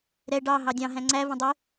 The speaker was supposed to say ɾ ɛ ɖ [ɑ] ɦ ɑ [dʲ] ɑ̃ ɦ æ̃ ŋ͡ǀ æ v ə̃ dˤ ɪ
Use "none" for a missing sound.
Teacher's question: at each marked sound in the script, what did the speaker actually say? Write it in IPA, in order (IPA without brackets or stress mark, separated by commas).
ɑ, dʲ